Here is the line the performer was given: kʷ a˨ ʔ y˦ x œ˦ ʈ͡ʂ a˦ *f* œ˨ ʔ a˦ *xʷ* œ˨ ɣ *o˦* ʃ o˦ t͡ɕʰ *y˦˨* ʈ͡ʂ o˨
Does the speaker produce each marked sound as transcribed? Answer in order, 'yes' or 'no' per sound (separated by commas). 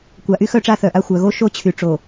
no, yes, yes, no